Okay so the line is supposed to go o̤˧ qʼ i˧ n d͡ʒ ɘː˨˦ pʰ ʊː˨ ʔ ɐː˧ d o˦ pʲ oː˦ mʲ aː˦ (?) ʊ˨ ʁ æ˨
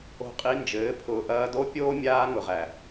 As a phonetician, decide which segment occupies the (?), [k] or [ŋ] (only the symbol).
ŋ